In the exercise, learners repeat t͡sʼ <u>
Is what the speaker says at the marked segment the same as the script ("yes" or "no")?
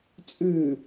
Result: no